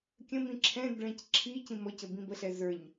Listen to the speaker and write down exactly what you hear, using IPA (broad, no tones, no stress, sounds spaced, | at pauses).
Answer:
kʲ ə̃ m ĩ ǁʰ ɛ̃ d ɭ ɛ̃ c ǁʰ i c ĩ m ɔ c ə b ĩ b ə ɬ ɛ z ə˞ ɲ